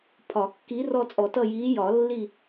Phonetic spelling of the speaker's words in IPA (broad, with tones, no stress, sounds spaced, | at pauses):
pʰ ɒ˨˩˦ kː i˨˥ r ɔ˦˨ t͡sʼ ɔ˨˩˦ t ʌ˦˨ j iː˨˥ j ɒ˨˩˦ lː i˦˨